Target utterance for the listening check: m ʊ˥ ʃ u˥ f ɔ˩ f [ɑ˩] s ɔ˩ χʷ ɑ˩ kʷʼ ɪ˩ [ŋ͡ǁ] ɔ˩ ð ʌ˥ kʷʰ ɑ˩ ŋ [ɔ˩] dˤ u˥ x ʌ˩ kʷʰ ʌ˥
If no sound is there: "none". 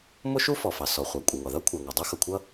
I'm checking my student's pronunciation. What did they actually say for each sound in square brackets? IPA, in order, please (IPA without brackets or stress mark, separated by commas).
ɑ˩, ŋ, ɔ˩